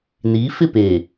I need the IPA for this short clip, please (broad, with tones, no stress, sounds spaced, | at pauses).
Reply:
n iː˨˦ f ɪ˦˨ p eː˨